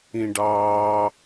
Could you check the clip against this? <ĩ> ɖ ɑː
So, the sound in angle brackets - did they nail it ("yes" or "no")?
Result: yes